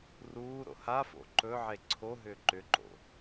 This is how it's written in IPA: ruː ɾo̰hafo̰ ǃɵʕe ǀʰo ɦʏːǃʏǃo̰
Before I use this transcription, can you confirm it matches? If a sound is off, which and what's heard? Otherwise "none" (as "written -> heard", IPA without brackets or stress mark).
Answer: none